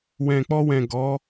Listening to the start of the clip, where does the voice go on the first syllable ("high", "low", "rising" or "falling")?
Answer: low